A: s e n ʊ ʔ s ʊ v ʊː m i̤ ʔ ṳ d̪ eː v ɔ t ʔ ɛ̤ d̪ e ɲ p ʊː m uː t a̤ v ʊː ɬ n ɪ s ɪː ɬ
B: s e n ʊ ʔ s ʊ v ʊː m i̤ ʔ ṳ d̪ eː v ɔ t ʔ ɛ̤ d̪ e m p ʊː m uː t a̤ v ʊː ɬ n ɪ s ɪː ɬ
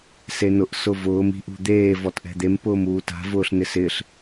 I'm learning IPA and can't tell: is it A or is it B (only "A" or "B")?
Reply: B